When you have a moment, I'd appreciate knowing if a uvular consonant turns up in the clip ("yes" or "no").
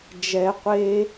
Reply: yes